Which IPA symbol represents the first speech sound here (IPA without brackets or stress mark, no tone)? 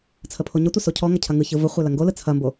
t͡sʰ